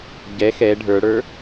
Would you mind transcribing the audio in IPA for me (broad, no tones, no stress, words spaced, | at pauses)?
ɟɛ xɛ ɖʱə˞ɽə˞